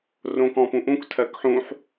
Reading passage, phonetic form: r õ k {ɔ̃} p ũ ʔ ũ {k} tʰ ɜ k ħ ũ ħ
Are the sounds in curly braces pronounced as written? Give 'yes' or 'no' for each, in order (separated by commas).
yes, yes